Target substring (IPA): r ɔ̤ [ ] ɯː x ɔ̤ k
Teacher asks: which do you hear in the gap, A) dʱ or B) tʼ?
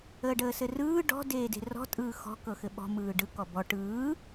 B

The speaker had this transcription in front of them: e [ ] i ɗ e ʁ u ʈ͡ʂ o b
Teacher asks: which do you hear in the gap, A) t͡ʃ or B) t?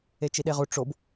A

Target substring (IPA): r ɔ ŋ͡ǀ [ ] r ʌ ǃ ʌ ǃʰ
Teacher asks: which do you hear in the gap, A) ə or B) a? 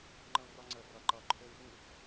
A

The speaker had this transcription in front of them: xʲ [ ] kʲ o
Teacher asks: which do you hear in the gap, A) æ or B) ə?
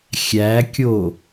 A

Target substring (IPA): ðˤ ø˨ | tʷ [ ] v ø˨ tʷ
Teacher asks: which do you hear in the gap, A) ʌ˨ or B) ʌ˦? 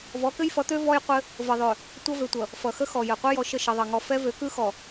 B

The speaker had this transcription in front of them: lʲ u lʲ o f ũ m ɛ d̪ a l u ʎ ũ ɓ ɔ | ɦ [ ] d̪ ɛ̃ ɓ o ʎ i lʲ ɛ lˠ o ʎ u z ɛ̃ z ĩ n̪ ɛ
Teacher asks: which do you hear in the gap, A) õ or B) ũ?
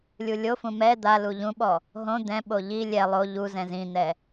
A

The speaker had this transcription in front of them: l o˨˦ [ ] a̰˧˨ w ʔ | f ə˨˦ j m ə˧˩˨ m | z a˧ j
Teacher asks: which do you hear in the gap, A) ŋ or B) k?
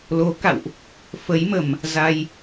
B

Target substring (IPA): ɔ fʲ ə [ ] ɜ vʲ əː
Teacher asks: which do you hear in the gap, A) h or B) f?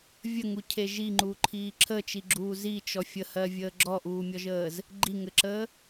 A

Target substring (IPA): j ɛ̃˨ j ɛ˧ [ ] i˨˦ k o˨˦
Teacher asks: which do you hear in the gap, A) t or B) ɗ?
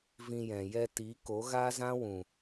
A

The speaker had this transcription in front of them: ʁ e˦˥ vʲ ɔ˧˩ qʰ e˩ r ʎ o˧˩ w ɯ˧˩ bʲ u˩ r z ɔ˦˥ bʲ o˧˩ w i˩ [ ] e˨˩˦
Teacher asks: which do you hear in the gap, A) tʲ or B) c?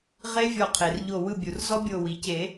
B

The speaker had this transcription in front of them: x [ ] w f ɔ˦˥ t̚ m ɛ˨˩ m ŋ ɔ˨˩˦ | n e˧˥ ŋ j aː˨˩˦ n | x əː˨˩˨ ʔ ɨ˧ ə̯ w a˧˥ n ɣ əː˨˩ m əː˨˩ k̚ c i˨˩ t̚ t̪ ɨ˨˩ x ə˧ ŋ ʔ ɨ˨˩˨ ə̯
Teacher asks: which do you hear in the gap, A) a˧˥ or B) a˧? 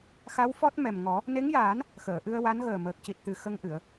A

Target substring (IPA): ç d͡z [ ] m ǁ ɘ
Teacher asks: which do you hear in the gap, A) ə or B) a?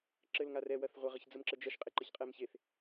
A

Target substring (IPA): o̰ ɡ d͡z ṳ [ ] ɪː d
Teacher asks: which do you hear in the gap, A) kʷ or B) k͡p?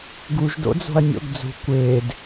A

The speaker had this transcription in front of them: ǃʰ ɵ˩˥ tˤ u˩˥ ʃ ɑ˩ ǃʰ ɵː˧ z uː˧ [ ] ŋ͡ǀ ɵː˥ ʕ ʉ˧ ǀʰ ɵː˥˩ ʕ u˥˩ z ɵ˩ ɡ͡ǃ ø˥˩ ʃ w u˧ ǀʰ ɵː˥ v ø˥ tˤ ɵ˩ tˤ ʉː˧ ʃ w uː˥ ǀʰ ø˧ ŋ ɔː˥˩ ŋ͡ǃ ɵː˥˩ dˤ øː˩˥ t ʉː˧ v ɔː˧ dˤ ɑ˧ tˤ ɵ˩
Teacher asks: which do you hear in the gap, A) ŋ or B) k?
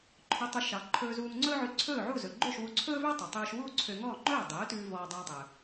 A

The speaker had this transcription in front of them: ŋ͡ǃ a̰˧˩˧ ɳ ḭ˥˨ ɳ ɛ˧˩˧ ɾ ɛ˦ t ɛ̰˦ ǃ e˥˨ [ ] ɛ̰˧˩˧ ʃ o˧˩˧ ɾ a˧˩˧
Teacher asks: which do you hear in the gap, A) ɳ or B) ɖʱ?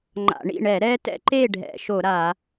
B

